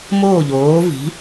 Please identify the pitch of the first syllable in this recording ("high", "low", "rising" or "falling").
falling